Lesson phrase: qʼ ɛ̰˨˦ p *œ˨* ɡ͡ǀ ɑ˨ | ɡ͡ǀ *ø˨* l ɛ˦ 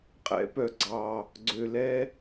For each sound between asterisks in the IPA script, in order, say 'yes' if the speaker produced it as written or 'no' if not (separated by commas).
yes, yes